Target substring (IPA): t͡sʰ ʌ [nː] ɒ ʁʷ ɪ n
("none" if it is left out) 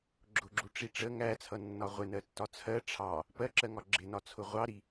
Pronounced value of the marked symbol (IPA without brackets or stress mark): nː